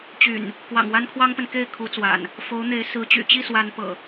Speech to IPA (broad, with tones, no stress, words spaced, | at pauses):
t͡ɕy̰˨˩n | kwɑ̰˨˩ŋ wa˦nkʰwɑ˦ŋpə˨n ke˥˨ɪ̯kʰu˨˦t͡swa̰˨˩n | fo˨˦ʊ̯n̪e˨˦ɪ̯sɹ̩˨˦t͡ɕy̰˨˩ t͡ɕi˥˨swa˨˦npɤ̰˨˩